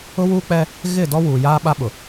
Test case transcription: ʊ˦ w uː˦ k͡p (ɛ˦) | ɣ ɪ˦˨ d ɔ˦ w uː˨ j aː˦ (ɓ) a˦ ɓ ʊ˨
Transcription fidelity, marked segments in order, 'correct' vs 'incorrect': correct, correct

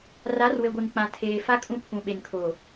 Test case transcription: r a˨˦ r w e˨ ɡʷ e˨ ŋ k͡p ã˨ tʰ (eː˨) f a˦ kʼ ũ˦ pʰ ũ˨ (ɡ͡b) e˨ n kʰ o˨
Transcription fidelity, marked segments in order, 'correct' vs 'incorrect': correct, incorrect

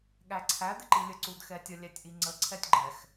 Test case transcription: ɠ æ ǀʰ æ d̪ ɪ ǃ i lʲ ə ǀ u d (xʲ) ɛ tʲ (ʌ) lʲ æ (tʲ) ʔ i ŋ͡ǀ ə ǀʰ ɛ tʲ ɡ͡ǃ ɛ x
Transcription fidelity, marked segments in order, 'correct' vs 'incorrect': incorrect, correct, correct

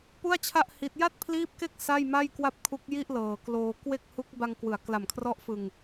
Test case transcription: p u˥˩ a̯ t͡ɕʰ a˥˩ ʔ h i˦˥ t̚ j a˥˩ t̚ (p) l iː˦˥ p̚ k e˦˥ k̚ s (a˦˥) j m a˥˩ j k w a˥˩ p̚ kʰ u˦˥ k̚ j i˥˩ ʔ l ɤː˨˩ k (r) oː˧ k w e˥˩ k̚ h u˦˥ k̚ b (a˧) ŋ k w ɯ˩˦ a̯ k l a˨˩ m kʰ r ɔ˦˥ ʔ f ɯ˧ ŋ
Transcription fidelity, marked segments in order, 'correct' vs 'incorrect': incorrect, incorrect, incorrect, correct

